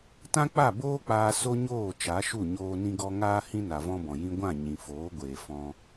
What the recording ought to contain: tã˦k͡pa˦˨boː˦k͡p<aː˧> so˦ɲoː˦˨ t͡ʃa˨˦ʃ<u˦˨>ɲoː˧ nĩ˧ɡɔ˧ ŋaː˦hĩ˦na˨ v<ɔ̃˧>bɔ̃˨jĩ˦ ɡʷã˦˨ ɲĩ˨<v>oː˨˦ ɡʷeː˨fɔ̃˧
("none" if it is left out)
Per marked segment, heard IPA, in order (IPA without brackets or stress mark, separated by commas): aː˧, u˦˨, ɔ̃˦, f